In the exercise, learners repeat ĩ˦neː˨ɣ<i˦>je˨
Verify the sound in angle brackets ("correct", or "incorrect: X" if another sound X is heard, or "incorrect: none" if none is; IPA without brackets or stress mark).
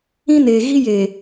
correct